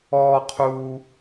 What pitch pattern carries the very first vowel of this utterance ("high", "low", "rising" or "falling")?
high